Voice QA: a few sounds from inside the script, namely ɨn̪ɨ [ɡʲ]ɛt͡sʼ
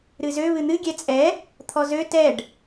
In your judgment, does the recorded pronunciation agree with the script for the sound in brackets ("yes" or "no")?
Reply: yes